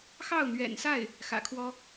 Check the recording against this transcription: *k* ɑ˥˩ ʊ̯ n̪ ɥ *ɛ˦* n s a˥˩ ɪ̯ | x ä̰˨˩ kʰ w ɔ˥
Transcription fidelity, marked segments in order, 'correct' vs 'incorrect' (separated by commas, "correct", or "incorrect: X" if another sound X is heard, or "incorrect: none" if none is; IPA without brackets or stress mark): incorrect: x, incorrect: ɛ̰˨˩